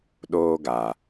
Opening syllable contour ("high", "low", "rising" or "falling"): high